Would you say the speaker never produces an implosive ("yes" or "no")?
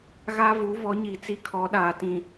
no